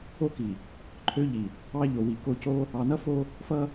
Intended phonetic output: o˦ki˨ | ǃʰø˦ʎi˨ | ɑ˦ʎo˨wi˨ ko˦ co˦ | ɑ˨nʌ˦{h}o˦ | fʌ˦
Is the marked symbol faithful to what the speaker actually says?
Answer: no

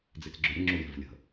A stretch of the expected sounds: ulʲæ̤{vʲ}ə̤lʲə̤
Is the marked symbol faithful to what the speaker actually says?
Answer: no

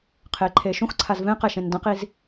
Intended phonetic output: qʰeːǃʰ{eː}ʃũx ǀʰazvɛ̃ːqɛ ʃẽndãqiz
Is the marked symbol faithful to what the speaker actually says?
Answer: yes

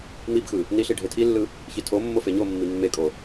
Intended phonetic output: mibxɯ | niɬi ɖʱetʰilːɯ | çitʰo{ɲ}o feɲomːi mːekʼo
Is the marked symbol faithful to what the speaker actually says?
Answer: no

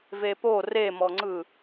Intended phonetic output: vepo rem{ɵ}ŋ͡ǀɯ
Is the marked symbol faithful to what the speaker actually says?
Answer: no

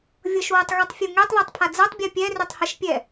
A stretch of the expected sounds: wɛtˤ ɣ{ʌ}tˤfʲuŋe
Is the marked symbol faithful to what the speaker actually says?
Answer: yes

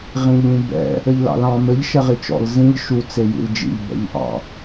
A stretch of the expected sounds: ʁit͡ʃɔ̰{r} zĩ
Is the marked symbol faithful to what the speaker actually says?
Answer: no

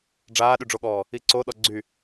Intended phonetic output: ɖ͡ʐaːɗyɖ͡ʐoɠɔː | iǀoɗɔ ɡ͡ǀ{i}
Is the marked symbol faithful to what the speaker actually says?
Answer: no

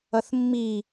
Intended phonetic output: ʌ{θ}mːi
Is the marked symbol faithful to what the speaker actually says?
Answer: yes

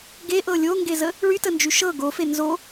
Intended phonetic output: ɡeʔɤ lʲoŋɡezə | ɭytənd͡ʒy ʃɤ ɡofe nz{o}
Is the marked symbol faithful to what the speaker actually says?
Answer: yes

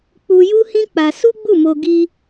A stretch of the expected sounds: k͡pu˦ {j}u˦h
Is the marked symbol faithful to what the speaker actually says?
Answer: yes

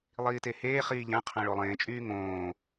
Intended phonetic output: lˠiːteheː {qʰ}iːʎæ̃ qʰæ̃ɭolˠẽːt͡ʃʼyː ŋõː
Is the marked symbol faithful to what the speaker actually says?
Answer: no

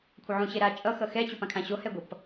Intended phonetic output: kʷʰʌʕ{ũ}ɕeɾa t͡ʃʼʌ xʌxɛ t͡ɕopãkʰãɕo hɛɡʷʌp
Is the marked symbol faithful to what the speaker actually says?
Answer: yes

